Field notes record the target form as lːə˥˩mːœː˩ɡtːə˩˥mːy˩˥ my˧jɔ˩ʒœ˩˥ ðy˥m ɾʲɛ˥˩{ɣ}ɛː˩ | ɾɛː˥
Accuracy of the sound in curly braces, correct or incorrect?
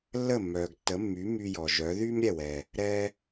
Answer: incorrect: w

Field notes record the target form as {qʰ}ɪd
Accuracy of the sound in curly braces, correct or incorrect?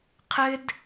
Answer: correct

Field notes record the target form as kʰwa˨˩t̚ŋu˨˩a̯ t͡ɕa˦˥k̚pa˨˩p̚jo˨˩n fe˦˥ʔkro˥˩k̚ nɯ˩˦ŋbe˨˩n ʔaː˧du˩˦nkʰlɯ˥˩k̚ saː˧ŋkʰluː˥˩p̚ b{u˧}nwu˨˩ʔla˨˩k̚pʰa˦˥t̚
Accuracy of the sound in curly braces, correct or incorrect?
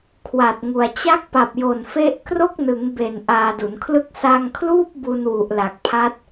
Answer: correct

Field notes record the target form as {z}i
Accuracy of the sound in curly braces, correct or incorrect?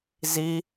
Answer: correct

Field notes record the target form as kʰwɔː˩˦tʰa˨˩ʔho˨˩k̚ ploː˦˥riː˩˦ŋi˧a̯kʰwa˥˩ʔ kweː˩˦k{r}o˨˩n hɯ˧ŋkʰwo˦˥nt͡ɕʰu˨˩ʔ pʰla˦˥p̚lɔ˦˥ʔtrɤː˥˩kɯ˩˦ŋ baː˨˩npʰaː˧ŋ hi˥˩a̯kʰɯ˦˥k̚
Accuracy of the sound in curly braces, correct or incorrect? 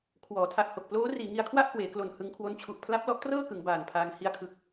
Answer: incorrect: l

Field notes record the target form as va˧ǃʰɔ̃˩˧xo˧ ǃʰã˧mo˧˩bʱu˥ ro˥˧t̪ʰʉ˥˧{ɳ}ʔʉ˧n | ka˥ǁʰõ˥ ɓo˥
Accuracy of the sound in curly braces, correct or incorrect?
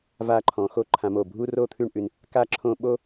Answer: correct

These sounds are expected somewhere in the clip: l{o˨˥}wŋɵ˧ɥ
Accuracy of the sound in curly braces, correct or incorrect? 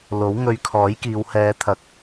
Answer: correct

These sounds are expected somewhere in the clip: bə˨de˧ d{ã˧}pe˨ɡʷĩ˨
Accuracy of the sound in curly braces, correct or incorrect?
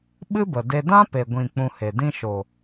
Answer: incorrect: ã˦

